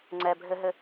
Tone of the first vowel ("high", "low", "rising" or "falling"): low